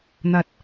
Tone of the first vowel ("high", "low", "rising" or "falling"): rising